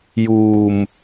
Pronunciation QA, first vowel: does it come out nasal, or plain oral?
oral